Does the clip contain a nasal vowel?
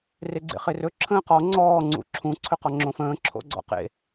yes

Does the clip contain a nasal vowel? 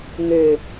no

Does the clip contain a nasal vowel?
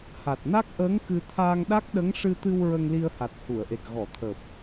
no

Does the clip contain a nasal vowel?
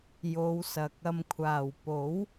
no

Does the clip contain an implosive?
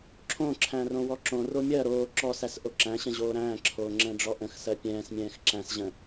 no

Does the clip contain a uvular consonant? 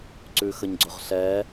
yes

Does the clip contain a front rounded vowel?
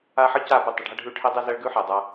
no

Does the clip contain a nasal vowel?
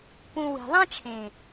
yes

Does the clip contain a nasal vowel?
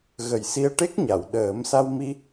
no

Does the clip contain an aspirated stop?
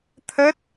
yes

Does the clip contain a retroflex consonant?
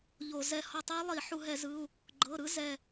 no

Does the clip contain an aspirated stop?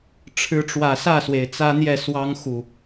yes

